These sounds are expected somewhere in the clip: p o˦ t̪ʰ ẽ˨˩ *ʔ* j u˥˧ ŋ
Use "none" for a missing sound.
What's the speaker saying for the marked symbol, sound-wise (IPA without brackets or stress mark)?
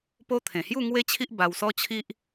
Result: h